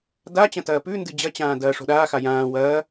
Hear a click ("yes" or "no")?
no